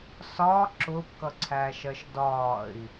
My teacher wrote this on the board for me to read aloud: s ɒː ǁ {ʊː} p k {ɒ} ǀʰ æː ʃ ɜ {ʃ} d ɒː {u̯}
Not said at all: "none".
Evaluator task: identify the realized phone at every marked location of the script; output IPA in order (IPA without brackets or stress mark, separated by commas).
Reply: ʊː, ʌ, ʃ, i̯